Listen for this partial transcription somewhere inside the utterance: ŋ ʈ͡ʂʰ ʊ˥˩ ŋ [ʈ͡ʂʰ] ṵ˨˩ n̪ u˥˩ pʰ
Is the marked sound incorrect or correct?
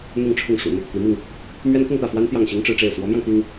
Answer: incorrect